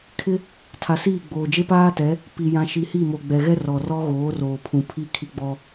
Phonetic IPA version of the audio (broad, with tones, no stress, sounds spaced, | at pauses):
kʰ ɪ˦ | tʰ a˨ s iː˦˨ ɡ͡b oː˨ d͡ʒ e˦ p aː˦ t ɛ˨˦ | p i˨ j ã˨ ʃ i˨ h i˦˨ m o˨ ɡ͡b ɛ˨ ɣ ɛ˦ r ɔ˨ r ɔ˦ ɣ oː˨˦ r oː˨ pʰ ũ˨ pʰ i˦ kʰ i˦ ɡ͡b ɔ˦